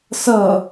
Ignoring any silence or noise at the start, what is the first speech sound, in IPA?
s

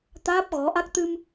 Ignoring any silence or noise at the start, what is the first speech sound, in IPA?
t̪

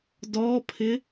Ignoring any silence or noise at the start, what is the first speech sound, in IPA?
d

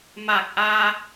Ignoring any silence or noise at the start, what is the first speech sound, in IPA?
m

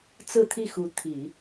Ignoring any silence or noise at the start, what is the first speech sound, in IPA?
t͡s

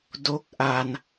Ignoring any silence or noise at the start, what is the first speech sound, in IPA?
d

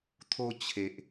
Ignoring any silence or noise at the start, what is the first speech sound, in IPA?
t̪ʰ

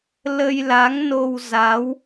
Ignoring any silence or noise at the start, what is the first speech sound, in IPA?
l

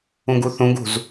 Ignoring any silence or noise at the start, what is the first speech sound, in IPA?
ũ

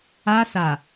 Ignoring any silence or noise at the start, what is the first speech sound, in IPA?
a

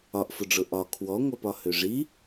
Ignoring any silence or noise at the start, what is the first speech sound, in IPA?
ɒ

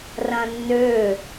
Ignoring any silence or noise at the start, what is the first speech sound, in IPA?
r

